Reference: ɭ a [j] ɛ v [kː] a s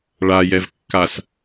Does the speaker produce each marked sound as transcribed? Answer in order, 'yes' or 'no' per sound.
yes, yes

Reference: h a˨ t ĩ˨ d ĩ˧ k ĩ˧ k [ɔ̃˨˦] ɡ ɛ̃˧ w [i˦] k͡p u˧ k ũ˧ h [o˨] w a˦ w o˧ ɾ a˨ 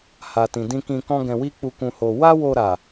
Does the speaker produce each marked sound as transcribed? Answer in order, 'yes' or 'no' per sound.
no, yes, no

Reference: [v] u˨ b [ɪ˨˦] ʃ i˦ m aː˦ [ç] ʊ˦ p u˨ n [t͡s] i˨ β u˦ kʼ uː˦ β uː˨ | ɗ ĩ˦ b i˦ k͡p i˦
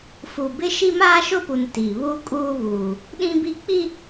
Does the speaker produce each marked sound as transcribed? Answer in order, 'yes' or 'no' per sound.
no, no, no, no

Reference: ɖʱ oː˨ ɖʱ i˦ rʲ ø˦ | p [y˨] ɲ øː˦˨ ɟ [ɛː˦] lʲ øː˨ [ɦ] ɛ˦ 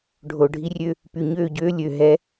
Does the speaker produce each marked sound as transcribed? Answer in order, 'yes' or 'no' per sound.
yes, no, yes

